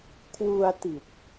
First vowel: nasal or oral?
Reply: oral